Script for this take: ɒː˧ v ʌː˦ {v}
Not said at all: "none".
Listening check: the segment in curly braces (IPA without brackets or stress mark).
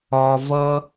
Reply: none